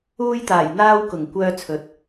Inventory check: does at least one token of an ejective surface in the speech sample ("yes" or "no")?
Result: no